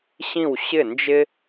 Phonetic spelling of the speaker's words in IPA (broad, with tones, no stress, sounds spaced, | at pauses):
ɕ ĩ˥˩ w ɕ ɪ˥˩ n d͡ʒ ɪ˥